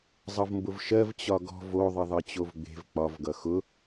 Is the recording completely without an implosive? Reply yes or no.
yes